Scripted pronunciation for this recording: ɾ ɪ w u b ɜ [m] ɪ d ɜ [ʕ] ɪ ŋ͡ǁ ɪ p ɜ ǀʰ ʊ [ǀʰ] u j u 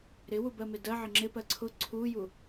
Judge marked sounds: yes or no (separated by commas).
yes, yes, yes